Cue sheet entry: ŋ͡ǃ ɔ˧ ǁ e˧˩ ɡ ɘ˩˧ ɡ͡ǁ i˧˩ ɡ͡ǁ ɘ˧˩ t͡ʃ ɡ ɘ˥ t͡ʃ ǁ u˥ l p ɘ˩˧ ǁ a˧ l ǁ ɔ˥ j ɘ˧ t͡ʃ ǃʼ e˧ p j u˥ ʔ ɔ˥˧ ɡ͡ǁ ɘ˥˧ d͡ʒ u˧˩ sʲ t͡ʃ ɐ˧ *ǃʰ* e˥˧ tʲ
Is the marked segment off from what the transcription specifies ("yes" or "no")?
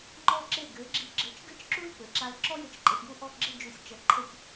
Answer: no